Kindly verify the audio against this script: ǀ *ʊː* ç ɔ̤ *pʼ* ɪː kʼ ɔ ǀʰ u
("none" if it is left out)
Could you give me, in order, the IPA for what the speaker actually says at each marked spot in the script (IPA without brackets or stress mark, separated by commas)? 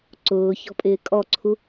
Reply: ʊː, pʼ